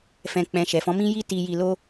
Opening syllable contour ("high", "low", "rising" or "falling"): low